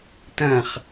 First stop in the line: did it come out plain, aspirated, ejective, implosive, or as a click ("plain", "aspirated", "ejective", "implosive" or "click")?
plain